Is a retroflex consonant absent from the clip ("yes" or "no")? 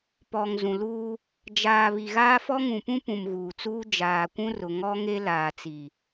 yes